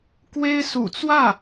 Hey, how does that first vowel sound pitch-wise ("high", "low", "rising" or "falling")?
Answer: high